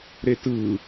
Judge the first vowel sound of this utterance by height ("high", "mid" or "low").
mid